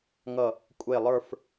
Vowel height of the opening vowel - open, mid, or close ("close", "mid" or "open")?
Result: mid